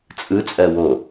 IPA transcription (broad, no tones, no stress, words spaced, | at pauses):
t͡sʼɯt͡sʼɜ wo